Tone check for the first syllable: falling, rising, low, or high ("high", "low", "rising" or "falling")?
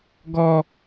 high